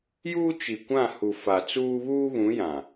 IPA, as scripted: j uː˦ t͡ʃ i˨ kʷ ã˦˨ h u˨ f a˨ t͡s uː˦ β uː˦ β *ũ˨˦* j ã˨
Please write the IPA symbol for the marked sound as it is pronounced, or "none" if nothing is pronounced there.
ũ˨˦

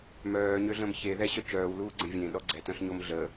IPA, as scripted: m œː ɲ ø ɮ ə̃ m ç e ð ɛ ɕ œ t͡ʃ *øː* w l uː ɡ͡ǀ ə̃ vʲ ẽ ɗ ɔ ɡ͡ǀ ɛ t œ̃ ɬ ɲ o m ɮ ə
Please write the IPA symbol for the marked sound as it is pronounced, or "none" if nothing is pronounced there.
œː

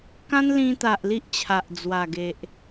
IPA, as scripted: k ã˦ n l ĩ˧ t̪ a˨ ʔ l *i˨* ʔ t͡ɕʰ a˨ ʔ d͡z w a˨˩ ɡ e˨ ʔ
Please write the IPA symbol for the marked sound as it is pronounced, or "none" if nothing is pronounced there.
i˦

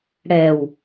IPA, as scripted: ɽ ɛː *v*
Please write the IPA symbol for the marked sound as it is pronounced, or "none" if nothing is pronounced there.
w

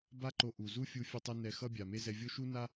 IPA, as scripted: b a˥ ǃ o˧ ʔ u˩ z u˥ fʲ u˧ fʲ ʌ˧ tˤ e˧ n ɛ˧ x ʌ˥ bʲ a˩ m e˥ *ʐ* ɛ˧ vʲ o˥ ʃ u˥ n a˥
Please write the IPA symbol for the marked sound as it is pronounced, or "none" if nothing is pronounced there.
z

